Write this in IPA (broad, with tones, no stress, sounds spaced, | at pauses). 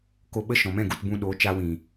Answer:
k o˧ ɓ ə˦ ʃ ɔ̃˨ m ɛ̃˦˨ ɡ u˦˨ t b ũ˧ ɗ oː˨˦ t͡ʃ a˧ w ĩ˨